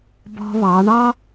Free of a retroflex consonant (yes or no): no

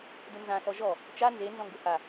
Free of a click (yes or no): yes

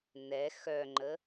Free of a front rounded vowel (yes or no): no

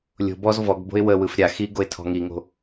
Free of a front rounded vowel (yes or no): yes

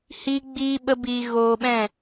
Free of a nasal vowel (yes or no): no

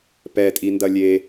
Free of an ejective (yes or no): no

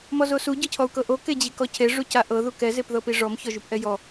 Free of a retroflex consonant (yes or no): no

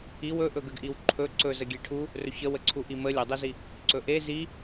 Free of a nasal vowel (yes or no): yes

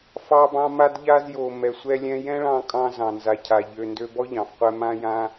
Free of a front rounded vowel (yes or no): no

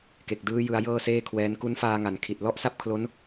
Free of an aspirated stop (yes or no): no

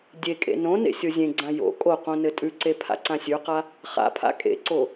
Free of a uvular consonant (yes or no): no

